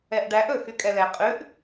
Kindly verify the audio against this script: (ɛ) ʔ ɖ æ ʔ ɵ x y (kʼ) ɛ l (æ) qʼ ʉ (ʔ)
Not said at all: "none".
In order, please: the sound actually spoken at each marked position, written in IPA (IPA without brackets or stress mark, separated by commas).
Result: ɛ, kʼ, ɛ, ʔ